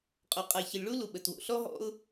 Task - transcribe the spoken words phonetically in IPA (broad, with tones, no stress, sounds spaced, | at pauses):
qʼ o˩ qʼ a˩ ç ə˩ lʲ ɭ u˥ l u˩ ɓ ə˩ t w o̰˩ ɬ ɔ˥ ɦ ɔ̰˥ ʊ̯